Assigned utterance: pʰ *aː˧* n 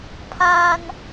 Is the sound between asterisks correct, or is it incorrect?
correct